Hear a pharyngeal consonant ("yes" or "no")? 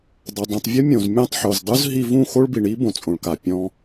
yes